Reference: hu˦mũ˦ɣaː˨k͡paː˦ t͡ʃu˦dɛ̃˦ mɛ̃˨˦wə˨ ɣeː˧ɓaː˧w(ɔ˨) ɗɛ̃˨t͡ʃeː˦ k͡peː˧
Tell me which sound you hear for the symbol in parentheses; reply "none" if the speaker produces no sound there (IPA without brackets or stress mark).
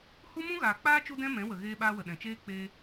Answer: ə˨